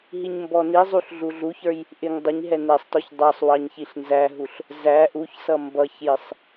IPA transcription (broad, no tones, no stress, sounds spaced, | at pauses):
ɦ i ɲ m b ɔ n i zˤ u ɬ ɮ u ɮ u ç ə˞ j | ʔ ɪ ŋ dˤ ɪ ɲ ɦ ɛ n ɛ sˤ t ɔ ç dˤ ɑ sˤ w ɑ ɲ ç i ɬ n z æ ɦ u ɬ | z æ ʔ u ç s ʌ m b ʌ ç j ɪ sˤ